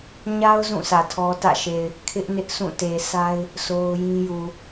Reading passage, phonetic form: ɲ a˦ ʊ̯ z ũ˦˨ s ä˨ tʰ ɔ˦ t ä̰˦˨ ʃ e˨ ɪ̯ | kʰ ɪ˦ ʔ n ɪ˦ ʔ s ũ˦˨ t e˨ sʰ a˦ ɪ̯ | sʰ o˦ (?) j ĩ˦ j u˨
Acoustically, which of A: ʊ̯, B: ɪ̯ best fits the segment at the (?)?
A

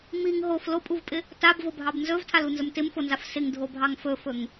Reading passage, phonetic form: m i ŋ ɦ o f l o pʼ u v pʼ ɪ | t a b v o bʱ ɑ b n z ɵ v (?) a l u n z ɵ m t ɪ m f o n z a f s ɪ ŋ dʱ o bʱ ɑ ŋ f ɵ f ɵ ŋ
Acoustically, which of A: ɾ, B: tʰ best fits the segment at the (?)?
B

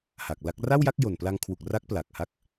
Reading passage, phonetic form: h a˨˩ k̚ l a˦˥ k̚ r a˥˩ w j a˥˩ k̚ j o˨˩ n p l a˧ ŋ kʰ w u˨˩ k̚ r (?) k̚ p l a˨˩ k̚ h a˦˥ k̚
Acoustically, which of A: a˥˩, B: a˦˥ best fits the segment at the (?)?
B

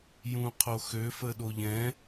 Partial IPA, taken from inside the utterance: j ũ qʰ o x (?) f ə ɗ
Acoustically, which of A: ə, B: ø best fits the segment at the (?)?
B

